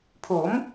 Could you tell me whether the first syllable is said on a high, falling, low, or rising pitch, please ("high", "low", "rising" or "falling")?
rising